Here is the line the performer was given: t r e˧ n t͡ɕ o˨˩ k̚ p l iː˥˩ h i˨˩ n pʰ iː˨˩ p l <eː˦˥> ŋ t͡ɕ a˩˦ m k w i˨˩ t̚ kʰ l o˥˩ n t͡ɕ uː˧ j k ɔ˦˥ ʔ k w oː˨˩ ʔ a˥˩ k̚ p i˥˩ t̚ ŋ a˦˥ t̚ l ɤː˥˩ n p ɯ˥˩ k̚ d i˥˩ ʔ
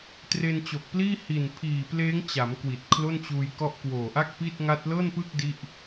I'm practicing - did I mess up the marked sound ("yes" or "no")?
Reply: no